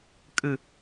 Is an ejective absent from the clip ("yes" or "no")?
no